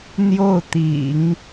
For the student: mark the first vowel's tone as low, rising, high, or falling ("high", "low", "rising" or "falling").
falling